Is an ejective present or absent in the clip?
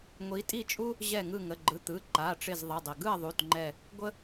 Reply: present